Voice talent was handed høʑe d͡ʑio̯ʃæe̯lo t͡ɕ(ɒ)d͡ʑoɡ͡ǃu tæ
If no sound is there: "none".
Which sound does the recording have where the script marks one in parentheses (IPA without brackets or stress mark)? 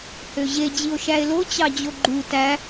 ɑ